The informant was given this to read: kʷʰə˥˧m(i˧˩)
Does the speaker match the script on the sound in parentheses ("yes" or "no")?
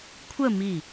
yes